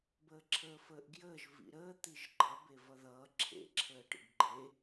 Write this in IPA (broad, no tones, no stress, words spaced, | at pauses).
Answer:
bəːǁʰəːfəːʔɡjəːʒ vḭɾəː t̪iʒɡ͡ǃʌ bevʌðʌː ǁʰḛ ǁʰəːʈḭɡɡ͡ǃe